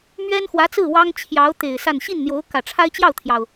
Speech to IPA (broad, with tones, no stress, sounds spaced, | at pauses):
m ɥ ɛ˥ n x w ä˧˥ t͡s ɹ̩˥˩ w ɑ˥ ŋ t͡ɕʰ j ɑ˧˥ ʊ̯ t̪ e˨˩ ɪ̯ s a˥˧ n ɕ i˥˩ n n̪ j o˧˥ ʊ̯ k ä˨˩ ʈ͡ʂʰ a˥ ɪ̯ t͡ɕ j ɑ˥˩ ʊ̯ t̪ʰ j ɑ˩ ʊ̯